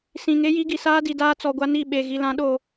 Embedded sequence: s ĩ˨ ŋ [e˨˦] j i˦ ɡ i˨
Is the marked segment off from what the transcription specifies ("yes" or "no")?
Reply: yes